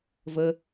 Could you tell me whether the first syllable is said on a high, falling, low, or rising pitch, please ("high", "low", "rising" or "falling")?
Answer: low